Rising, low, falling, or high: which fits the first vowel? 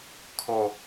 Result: high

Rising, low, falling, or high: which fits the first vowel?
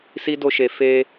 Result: high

